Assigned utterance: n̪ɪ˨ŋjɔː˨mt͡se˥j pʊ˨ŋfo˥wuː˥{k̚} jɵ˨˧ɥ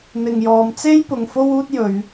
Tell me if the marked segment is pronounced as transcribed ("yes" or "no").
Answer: no